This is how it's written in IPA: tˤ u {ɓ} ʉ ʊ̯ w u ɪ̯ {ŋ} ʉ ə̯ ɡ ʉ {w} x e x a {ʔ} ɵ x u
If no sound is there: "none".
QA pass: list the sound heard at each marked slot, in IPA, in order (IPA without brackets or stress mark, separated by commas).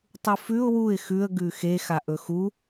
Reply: f, x, none, ʔ